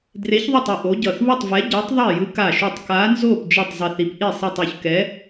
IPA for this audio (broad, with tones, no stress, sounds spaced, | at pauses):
d r e˨˥ ç ðˤ o˥˩ tˤ ɯ˧˩ ʔ o˨˥ ɟ ʌ˧˩ θ β u˥˩ tˤ v ɛ˨˥ ɟ ɛ˨˥ tˤ ðˤ i˥˩ j ɯ˨˥ k a˧˩ ʃ u˧˩ tˤ k a˨˥ n z o˥˩ p d͡ʒ ɛ˥˩ tˤ zˤ i˧˩ θ i˨˥ p ʔ i˥˩ sˤ i˧˩ tˤ o˧˩ ç k ɛ˨˥